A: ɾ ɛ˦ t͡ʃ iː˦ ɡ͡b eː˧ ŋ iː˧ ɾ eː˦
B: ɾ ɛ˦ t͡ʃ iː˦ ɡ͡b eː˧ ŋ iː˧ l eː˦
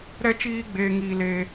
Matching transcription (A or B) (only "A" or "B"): B